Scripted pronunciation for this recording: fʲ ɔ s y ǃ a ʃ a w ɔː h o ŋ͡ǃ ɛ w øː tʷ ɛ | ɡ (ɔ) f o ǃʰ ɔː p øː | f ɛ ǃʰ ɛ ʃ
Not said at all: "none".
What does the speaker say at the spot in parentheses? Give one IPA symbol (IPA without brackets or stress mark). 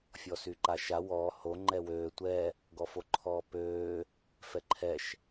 ɔ